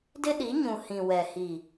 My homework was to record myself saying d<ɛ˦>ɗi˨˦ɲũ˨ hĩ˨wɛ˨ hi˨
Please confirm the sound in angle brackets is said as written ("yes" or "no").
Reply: no